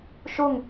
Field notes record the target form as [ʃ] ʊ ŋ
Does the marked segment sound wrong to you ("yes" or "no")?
no